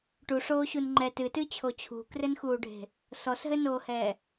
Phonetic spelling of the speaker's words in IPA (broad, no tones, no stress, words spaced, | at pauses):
ʈuʂoːɕun ŋ͡ǃɛt ɨtɨt͡ɕʰo t͡ɕʰṳkrɘnxuːɖʱe̤ | sɔsɦɘnoːhɛː